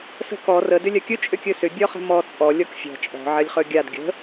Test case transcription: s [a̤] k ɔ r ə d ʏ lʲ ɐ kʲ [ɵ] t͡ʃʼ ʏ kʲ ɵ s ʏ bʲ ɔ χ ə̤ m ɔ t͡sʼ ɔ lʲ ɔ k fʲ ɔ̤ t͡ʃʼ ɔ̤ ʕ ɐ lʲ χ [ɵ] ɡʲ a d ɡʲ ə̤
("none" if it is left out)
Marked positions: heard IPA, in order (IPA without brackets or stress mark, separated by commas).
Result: ə̤, ɵ, ɵ